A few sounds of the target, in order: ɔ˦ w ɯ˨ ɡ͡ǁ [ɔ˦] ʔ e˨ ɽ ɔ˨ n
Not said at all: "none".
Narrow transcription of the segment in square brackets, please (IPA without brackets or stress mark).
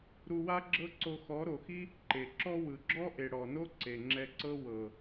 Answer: ɔ˦